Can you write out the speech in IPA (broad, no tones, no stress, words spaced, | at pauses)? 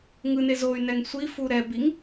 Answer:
ŋɯne zoy̯nɛŋ sʷifu ɾɛbiŋ